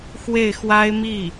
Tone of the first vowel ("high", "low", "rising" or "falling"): falling